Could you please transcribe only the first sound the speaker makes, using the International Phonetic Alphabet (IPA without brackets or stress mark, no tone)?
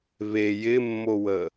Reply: β